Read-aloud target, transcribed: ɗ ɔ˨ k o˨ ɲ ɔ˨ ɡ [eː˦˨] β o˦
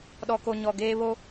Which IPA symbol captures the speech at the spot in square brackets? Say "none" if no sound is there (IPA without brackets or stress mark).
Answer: eː˦